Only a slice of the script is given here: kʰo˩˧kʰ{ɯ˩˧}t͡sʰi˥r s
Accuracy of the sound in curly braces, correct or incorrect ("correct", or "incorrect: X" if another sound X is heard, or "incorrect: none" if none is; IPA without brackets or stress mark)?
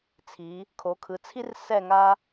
correct